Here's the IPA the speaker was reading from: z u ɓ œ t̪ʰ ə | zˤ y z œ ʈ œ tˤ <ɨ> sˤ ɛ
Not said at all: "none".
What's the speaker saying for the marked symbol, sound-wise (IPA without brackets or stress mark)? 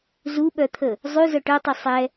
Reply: i